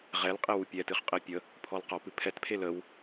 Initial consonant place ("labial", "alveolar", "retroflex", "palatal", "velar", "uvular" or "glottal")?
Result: uvular